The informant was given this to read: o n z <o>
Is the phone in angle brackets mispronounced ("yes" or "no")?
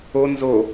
no